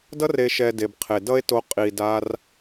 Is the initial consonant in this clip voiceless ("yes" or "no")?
no